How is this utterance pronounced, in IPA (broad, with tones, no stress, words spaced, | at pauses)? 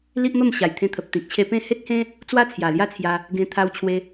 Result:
li˦ʔmə˥˧m ɕa˨˩jt̪ʰẽ˧t̪ʰə˨p̚ t̪ĩ˨k̚t͡ɕʰe˧ pẽ˥˧ he˦t̚hẽ˦ | t͡swa˦t͡sʰja˨˩lja˦t͡sʰja˧ | ɡẽ˧ t̪ʰa˧wt͡ɕʰwe˧